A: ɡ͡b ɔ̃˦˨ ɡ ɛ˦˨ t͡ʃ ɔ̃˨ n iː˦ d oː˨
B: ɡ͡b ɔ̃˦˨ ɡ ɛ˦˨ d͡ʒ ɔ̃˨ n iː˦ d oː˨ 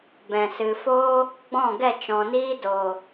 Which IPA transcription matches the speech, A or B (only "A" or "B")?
A